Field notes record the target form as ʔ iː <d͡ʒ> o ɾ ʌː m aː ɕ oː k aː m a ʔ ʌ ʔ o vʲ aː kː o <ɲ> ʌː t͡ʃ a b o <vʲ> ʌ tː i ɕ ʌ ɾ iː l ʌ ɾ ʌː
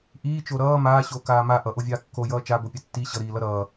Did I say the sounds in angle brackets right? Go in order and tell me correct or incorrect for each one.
incorrect: t͡ʃ, incorrect: j, incorrect: pʲ

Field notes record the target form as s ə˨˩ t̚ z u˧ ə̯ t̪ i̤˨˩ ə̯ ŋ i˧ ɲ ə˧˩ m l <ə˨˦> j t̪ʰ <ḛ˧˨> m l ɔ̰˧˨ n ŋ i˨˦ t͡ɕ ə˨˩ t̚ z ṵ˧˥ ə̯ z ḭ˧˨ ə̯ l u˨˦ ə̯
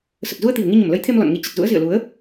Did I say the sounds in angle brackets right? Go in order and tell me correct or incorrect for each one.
correct, incorrect: e˧

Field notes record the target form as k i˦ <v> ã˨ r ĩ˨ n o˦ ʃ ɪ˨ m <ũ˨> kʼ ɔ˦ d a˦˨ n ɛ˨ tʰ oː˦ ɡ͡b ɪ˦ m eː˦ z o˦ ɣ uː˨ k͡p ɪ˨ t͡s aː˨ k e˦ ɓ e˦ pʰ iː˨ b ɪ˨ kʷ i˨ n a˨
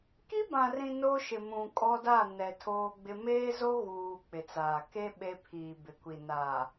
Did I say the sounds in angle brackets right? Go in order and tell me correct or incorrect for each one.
incorrect: b, correct

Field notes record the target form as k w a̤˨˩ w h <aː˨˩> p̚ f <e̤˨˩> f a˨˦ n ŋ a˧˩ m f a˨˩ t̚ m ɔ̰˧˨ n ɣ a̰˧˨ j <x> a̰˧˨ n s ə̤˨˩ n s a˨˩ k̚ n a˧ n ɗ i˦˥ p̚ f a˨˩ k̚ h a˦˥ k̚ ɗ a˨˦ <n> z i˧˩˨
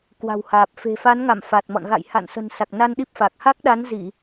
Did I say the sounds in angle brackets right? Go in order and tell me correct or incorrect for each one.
correct, correct, incorrect: h, correct

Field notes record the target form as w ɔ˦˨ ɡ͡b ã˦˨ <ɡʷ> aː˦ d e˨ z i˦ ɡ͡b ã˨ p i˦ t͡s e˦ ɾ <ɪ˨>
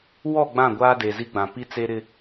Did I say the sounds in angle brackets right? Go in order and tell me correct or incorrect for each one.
correct, incorrect: ɪ˦

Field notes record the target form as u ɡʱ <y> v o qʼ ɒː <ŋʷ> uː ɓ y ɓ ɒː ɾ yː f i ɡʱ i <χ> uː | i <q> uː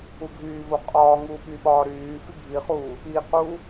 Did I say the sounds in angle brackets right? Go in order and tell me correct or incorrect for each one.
incorrect: yː, incorrect: ŋ, correct, correct

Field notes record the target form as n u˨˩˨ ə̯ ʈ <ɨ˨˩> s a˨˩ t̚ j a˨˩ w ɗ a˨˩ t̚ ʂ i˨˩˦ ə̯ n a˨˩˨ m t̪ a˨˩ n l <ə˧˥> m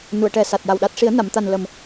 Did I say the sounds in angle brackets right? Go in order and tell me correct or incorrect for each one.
incorrect: ɛ˨˩, incorrect: ə˨˩

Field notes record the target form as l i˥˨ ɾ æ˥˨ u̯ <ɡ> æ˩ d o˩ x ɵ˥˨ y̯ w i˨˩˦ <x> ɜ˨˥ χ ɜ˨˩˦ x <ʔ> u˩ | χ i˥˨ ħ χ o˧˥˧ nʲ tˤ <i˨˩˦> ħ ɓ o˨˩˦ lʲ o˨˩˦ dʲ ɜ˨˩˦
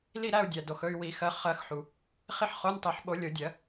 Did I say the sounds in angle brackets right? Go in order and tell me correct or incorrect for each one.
incorrect: dʲ, correct, incorrect: ħ, correct

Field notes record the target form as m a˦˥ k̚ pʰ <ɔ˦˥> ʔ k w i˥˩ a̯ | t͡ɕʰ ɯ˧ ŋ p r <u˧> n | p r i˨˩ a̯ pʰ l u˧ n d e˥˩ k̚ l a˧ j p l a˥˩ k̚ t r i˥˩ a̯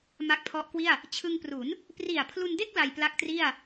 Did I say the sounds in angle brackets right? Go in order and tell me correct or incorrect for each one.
correct, incorrect: u˩˦

